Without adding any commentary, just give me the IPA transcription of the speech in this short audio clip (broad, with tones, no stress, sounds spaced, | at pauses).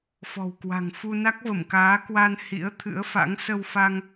f ɔ̤˨˩ w k w a̤˨˩ ŋ f u˧ n a˦˥ k̚ v ə˧˩ m k aː˨˦ k w a˧ n h ḭ˧˥ ə̯ t̪ʰ ɨ̰˧˥ ə̯ f a̰˧˥ ŋ s ə˧ w f a˧ ŋ